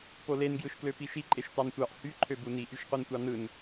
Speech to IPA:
polen ɡjɯʃkløpiʃi ǃʼeʃtɑntʷɑʔ hy ǃʰøbuni ʔyʃqʷintʷɑnɯn

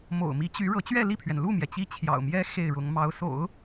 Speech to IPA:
mo̰˨˩ʊ̯mi˧˥t͡ɕy˧˥ ɻɤ˧˥t͡ɕɥɛ˥˧li˥˩pʰɥɛ˩n lu˥˩mjɛ˩ t͡ɕi˥t͡ɕʰjɑ̰˨˩ʊ̯mjɛ˥ xe˥˩ɪ̯ɻʊ˧˥ŋmɑ˧˥ʊ̯ so̰˨˩˦ʊ̯

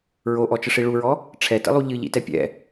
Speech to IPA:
ɹoʔɔt͡ʃəʂi ɭuɹɔ | ʈ͡ʂʰɛtə̰lˠu ʎɨʎḭtɛ pʲɛ̰

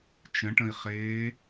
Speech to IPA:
t͡ʃə̃ʈə̃i̯χeː

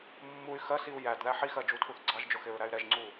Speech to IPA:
mːuy̯ xɜsiu̯ jædðæ ħixɜ d͡ʒutʰuθɡ͡ǀɑʒd͡ʒʊ xɪɹɾæy̯ɾɛʒŋ͡ǀu

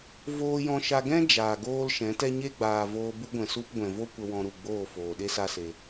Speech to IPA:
voː˧jɔ̃˧ʃa˧ ɡɛ̃˧ d͡ʒaː˨ɡoː˦l ʃɛ̃˨˦tɛ˦ ɲe˦ɡ͡baː˨ voː˧bu˦ɡʷɛ̃˨su˦p ɡʷɛ̃˨vo˦ kʷə˧wɔ̃˧ɾu˨ ɡ͡boː˦˨foː˨ ɗe˦sa˦se˧

